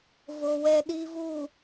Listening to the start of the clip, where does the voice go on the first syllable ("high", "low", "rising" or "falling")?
low